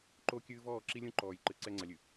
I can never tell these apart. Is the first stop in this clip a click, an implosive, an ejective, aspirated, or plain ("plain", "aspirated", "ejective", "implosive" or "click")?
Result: click